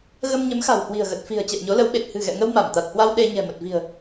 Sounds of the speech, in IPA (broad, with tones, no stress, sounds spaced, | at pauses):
ɣ ə˧ m ɲ ə˨˦ m x a̤˨˩ w h w i̤˨˩ ə̯ ɣ ə˨˩ t̚ f i̤˨˩ ə̯ t͡ɕ ɛ̰˧˨ w ɲ o˨˦ l ə˨˦ w ɓ e˨˩ t̚ h ɨ̤˨˩ ɣ ɛ̰˧˨ ŋ ə˧ w m a˧˩ m t̪ a˨˩ t̚ h w a˧ w ɗ e˧ ɲ ɛ̤˨˩ m ə˨˩ t̚ v i̤˨˩ ə̯